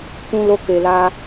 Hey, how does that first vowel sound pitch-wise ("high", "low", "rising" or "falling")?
high